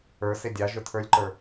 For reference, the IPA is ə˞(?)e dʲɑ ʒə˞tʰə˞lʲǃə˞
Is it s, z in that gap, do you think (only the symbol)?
s